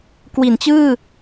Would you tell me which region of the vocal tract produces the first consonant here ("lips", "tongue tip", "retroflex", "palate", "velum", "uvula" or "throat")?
velum